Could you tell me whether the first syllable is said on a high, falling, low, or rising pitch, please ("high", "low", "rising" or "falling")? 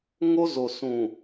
high